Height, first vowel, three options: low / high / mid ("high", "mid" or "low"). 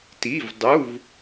high